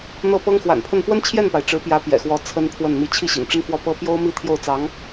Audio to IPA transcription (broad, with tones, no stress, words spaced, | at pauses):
n̪ɤ˥˩pɤ˥ŋ xwa̰˨˩npʰə˥˩n pwə˥nt͡ɕʰjɛ˥˩npa˩ɪ̯ ʈ͡ʂɻ̩˧˥pjä˧˥ pjɛ̰˨˩xwɔ˧˥ t͡sʰə˥npʰwə˥˩n mi˧˥t͡ɕʰi˥˩ ɕḭ˨˩ŋʈ͡ʂə˥nfwɔ˥˩pɤ˥ pjo˥ʊ̯mi˥˧ t̪ʰjo˥˩ʊ̯t͡sɑ˧˥ŋ